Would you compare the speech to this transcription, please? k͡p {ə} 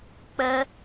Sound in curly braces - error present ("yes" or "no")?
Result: no